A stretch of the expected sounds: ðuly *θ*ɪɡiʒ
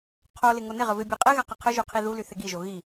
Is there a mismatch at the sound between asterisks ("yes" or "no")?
no